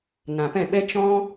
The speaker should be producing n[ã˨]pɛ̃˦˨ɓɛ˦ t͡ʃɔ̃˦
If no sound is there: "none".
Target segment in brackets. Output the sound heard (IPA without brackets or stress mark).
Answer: ã˨